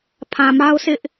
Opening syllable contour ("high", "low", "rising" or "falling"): low